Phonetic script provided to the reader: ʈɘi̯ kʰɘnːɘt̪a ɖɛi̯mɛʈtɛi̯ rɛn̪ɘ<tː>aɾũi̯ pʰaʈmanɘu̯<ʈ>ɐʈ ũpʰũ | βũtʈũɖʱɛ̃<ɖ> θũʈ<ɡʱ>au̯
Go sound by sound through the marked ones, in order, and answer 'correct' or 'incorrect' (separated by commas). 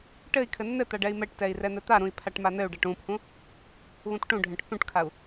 incorrect, incorrect, incorrect, incorrect